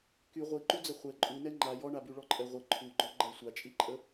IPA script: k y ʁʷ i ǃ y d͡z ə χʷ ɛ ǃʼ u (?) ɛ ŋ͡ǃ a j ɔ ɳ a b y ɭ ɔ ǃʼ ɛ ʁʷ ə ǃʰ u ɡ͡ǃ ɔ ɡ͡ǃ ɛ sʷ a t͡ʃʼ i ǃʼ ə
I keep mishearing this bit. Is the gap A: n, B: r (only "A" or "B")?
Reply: A